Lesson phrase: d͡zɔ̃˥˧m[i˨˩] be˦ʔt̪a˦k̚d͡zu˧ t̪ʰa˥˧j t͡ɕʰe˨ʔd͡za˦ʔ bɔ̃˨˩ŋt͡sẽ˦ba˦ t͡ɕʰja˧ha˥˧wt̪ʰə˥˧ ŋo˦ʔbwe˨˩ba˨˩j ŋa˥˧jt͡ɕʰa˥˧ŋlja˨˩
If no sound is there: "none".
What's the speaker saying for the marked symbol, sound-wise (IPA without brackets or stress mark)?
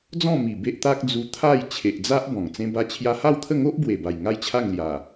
i˨˩